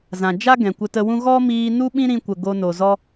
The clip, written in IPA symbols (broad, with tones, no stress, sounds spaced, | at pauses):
z ã˨ d͡ʒ a˦ ɡ ɛ̃˨ kʷ ə˧ t ə˧ w ũ˦ ɣ ɔ˦ m iː˧ n u˦ ɓ ĩ˦ ɾ ĩ˧ kʷ ə˨ ɡ o˧ n o˨ z ɔ˦